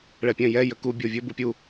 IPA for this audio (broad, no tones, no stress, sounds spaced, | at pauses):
ɭ ɛ pʲ ɛ̃ j ɛ j ə k u bʲ o vʲ ɵ b u pʲ u